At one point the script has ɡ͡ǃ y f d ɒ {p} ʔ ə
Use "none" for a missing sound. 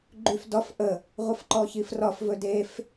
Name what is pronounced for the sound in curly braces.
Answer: f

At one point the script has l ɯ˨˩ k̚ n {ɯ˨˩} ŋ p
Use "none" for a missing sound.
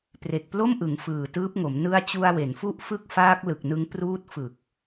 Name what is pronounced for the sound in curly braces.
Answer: ɯ˦˥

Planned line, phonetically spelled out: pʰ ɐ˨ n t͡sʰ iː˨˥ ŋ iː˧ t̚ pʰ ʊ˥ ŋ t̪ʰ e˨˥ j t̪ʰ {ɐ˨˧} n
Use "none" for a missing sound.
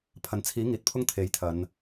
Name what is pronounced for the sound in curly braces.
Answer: ɐ˨˧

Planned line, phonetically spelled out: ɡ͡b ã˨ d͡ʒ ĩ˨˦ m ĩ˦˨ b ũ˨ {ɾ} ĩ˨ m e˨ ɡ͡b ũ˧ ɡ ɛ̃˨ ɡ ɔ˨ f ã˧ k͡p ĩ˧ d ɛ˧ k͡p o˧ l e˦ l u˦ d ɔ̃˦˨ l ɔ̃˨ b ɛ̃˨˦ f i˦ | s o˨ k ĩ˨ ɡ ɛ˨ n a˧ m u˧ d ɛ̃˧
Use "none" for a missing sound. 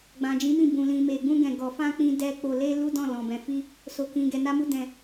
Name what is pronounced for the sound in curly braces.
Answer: l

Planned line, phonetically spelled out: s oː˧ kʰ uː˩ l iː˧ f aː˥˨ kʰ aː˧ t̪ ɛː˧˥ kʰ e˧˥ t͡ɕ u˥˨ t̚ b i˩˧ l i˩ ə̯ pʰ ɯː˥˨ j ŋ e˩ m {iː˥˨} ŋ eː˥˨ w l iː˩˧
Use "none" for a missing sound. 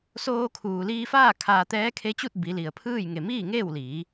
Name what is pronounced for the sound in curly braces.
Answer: iː˥˨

